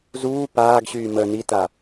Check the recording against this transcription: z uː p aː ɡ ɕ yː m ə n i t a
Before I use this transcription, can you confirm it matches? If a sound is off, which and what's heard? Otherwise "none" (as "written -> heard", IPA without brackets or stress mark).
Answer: none